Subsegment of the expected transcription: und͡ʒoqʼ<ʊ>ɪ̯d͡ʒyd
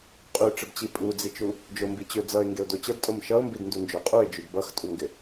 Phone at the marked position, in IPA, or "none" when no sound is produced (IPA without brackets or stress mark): u